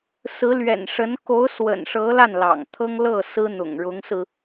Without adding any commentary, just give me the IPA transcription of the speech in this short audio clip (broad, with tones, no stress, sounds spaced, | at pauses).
s ɹ̩˧˥ l ɥ ɛ̰˨˩ n ʂ ə˧˥ n k o˧˥ ʊ̯ s w ə̰˨˩ n ʂ ɤ˧˥ l a˥˩ n l ɑ̰˨˩ ŋ t̪ʰ ɤ˥ ŋ l ɤ˥˩ s ɹ̩˥ n̪ ʊ̰˨˩ ŋ ɻ ʊ˧˥ ŋ s ɹ̩˧